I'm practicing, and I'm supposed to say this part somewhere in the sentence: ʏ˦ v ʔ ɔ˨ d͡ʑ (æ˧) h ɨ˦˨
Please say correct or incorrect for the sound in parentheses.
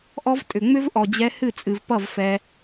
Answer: incorrect